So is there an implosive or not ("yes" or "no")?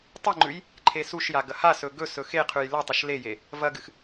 no